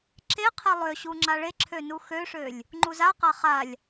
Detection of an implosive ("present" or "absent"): absent